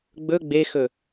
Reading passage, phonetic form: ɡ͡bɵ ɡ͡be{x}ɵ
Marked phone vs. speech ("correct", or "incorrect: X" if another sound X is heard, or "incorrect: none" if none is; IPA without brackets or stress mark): correct